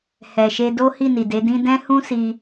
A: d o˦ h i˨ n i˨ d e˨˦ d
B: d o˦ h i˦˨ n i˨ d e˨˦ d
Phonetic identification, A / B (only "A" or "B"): B